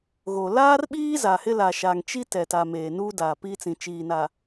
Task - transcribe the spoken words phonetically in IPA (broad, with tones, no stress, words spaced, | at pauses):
ɣo˨ laː˦rɓiː˦ za˨hɪ˦la˨ʃa˨ŋ t͡ʃi˦tɛ˨ta˨ meː˨nuː˦daː˨ pi˦t͡sĩ˨ t͡ʃiː˨na˨